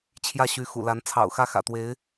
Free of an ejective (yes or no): yes